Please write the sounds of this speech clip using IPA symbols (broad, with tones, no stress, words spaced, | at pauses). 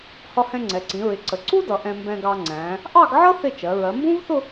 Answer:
hɒ˧hɛ̃˧ŋ͡ǀɛ˩˧ǀĩ˩˧ ɹɪ˩˧ǀə˩˧ ǀu˥dʌ˩˧ ʔɛ̃˧mbɛ̃˧ɡɑ˧ŋ͡ǀæ̃ː˩˧ | ʔɑ˥˧ɡʕʌ˥ θɪ˥˧t͡ʃɜ˩˧ ɹɜ˩˧mbũ˥vθʊ˥˧